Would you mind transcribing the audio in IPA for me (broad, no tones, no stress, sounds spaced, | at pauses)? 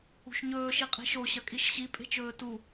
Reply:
ṳ ʃ ɲ ɵː ʃ i qʼ i̤ ʃ o ɕ ɐ kʼ i ʃ ɕ i pʼ e̤ t͡ʃ ɵː t u